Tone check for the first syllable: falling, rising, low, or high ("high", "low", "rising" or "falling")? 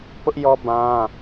high